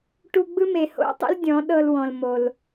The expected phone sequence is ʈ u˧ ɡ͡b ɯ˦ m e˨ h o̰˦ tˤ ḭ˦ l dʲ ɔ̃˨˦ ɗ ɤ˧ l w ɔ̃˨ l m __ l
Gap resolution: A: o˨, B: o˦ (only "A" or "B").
A